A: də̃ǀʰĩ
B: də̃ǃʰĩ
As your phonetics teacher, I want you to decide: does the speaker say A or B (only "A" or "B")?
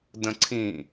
A